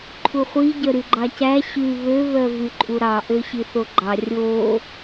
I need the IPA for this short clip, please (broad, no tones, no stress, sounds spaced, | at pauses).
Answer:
ǃʰ u χʷ i ɟ œ ɾ y ɡ͡ǃ ɑ c æ ɕ ʉ β ø β œ v y ǃʼ u ɾ ɑ ʔ ø ɕ i θ o ɡ͡ǃ ɑ rʲ o